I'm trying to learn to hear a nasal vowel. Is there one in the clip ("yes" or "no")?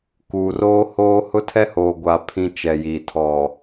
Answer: yes